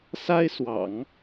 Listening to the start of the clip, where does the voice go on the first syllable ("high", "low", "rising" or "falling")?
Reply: high